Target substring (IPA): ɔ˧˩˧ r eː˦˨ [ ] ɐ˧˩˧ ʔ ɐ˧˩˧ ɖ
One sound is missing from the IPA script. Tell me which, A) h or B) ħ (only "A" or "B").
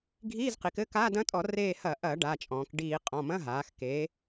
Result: A